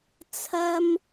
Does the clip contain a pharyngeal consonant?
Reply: no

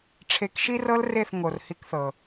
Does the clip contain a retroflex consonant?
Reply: yes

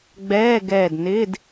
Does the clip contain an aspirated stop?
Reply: no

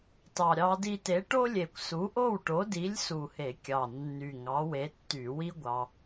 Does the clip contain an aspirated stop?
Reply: no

